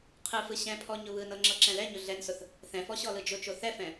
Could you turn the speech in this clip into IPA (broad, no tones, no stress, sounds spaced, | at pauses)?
qʰ ɯ f ɯ ɕ ɛ̃ pʰ ɔ ɲ ʊ β ɯ n ɤ ŋ͡ǁ ɤ ǁ ɛ̃ l ɛ ɲ ʊ ɮ ɛ n s ʊ θ | θ ɛ̃ f ɔ ɕ ɔ l ɯ d͡ʒ ʊ t͡ʃ o θ ɛ f ɛ̃